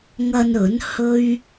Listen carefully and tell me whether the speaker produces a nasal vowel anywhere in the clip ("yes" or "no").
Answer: no